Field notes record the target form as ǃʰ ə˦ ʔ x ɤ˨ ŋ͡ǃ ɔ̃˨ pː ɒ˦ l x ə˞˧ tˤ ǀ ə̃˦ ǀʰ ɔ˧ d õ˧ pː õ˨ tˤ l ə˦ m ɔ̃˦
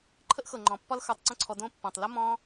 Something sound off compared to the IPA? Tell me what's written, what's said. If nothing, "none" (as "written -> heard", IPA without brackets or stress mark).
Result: none